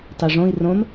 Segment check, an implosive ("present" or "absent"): absent